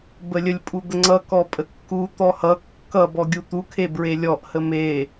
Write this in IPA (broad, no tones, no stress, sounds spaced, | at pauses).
b ə lʲ ə lʲ pʼ u d̪ ə ŋ͡ǀ ʌ k ɔ pʼ ə kː u t̪ ɔ h ʌ kː ʌ b ɔ ɡʲ u t̪ u kʰ e b ɹ e lʲ ɔ ʔ h ə m e